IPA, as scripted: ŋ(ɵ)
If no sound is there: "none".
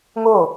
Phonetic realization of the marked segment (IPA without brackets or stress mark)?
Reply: o